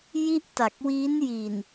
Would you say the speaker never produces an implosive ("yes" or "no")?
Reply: yes